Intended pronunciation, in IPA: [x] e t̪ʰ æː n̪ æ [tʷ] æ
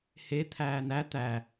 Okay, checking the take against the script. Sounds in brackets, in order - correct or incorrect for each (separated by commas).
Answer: incorrect, incorrect